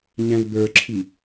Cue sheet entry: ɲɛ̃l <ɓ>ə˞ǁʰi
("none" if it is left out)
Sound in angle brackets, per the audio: b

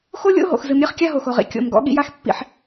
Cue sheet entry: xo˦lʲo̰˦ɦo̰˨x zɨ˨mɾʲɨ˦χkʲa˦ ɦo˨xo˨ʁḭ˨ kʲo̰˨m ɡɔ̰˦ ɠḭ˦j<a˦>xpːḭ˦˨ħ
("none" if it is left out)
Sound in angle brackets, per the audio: a˦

